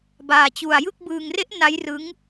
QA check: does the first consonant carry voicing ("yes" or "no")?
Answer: yes